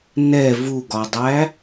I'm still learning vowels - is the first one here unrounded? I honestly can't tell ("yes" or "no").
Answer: yes